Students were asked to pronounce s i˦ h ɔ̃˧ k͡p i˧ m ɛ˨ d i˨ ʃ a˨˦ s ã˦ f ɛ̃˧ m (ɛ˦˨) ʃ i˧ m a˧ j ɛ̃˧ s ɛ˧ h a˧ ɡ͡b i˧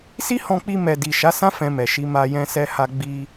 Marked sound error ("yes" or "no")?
yes